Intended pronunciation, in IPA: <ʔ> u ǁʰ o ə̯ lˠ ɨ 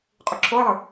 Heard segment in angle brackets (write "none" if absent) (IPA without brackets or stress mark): qʼ